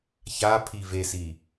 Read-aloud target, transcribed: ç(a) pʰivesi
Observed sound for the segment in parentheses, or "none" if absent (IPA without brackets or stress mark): a